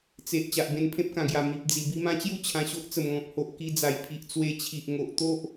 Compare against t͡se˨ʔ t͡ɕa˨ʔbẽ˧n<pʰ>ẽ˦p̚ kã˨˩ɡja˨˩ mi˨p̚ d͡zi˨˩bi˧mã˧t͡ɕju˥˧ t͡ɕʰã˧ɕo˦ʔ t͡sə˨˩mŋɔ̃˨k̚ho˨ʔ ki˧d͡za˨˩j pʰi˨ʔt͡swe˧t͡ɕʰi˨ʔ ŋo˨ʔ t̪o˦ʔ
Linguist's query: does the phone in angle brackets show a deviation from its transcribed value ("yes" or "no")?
no